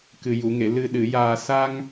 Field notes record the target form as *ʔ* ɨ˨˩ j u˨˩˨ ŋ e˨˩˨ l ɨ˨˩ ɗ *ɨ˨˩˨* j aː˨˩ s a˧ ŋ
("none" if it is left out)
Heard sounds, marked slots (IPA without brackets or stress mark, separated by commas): k, ɨ˨˩˨